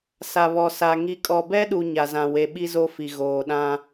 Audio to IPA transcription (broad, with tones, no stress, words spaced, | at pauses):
sa˨βɔ˨sa˨ ŋi˨kʼɔ˨bɛ˦ɗu˨ ɲa˨zã˨we˨ɓi˦ zo˦fi˨ ɣoː˨ ɗã˦